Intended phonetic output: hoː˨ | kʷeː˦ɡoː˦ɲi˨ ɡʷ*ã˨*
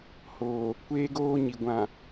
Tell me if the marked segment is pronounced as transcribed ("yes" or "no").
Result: yes